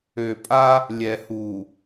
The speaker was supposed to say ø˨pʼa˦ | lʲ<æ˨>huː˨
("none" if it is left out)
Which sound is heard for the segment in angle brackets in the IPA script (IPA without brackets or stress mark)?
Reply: ɛ˨